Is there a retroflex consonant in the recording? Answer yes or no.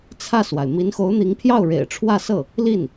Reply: yes